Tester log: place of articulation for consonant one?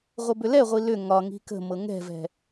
uvular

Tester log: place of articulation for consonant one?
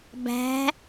labial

